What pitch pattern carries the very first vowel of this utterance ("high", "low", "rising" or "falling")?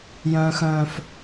high